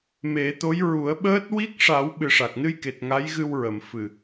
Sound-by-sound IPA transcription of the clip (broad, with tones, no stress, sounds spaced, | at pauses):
m e˨˩˦ t̪ o˧˥ j ɹ u˨˩˦ ə̯ ɓ əː˦˥ t̚ w i˦˥ k̚ ʂ a˨˩˦ w ɓ ɨ˨˩ ʂ a˨˩ k̚ n ɨ˧ j k e˨˩ t̚ ŋ a˧˥ j ɣ ɨ˧ w ɹ ə˨˩˨ m f ɨ˨˩